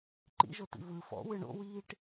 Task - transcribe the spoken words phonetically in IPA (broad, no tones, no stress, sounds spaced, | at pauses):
ǃ ḭ ʒ o t ḭ v ɯ f ɔ̰ w ɯ ɳ o̰ w iː ʈ